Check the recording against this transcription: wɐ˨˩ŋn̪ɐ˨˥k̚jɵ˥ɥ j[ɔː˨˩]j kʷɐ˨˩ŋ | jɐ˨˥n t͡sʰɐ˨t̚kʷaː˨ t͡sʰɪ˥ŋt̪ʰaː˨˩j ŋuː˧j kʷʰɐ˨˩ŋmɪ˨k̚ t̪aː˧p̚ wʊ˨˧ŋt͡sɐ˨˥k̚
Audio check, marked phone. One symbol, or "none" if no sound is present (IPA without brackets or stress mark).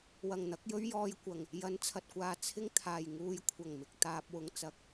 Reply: ɔː˧